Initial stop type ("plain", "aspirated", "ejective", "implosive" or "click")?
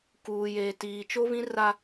plain